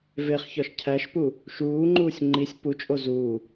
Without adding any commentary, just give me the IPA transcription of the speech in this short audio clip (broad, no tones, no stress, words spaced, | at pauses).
veχçɒʃ cʰæʃpu | ʃuːŋ͡ǃuːsʲ ŋ͡ǃisʲ put͡ʃʼo zuː